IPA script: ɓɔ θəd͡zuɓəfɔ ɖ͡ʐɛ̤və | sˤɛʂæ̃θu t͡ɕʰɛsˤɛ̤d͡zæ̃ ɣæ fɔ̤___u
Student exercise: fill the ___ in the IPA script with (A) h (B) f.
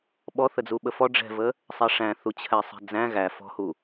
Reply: A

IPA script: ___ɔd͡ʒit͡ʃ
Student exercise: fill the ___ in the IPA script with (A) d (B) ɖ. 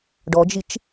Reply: B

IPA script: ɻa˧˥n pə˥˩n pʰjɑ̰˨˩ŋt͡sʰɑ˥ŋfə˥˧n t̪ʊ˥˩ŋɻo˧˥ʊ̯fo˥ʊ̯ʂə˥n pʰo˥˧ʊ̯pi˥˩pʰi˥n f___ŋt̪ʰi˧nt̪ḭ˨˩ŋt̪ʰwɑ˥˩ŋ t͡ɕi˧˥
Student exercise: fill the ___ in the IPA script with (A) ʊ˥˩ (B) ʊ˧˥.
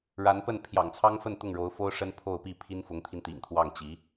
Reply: B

